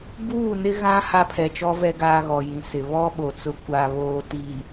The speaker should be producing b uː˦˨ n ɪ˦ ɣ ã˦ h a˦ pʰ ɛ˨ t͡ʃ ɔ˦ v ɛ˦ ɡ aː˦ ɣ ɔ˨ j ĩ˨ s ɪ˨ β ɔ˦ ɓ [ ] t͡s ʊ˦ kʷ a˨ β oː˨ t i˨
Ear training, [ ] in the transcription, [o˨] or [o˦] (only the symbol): o˨